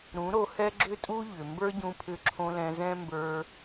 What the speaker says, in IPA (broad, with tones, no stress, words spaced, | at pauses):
ɾũ˨˦ɾo˧hɛ˦ ɡ͡ǁʏ˦tʼu˦ ʎʏ˨ mbə˞˦ɟũ˧pʰʏ˧ǁʰõ˧ lɛ̃˧zɛ̃˦mbə˞˧